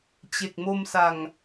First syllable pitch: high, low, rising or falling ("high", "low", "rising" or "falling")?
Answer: low